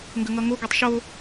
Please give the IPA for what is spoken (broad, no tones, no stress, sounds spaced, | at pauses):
ŋ ɡ ə ŋ ʌ ŋ o ɡ ʌ tˤ ʃ o